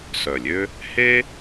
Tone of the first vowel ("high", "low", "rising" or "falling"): low